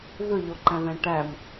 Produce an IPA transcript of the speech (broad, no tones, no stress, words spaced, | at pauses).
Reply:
vøʎoǃæ̃ðæ̃ ʈæm